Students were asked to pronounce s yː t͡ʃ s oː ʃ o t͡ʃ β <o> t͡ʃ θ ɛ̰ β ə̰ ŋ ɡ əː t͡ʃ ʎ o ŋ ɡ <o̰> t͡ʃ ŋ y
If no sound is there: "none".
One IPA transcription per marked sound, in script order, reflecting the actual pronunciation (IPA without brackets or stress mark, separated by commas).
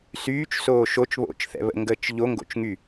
o̰, o̰